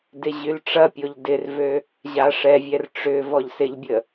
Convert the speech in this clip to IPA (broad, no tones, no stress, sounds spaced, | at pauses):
d ɪ ʑ y l ʈ͡ʂ ɐ pʲ o ʎ d ɪ r v ø | ʑ a ʂ ɛ vʲ ɛ r ʈ͡ʂ ʏ v ɔ ʎ s ɪ ʎ bʲ ə